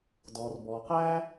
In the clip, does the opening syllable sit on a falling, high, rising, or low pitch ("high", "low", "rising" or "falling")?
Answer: low